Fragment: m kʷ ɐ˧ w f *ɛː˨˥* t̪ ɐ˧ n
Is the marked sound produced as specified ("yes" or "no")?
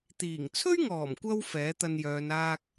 yes